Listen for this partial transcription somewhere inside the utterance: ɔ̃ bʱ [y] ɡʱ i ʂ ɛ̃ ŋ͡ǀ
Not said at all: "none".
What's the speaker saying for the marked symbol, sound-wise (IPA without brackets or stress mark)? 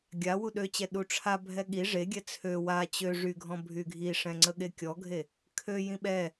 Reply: y